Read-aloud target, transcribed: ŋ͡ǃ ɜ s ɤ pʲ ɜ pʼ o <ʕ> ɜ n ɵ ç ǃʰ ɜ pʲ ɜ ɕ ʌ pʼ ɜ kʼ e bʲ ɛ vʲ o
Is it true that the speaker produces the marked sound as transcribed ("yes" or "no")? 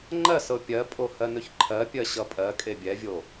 no